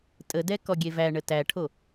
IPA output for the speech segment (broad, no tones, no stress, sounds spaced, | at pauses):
tʼ ə d ɛ k ɔ ɡʲ e v æ ɳ ə t æ ʈʰ o